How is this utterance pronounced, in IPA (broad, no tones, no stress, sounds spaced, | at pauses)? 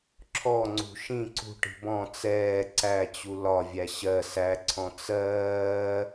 ǁʰ ɔ ŋ͡ǀ ṳ ʃ ĩ ǀ ṳ ʈ i̤ b ɔ̃ t͡s ɛː ǀ æ t͡ɕ u l ɒ vʲ æ ɕ ɜ s æ ǀʰ ɔ̃ t͡s ɜː